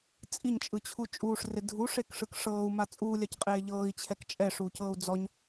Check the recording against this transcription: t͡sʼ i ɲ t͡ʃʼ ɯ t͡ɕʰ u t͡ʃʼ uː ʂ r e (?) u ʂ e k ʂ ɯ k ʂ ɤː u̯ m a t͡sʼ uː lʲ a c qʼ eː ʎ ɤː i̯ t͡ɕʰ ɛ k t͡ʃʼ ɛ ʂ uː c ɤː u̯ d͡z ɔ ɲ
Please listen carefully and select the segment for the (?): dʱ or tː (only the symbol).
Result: dʱ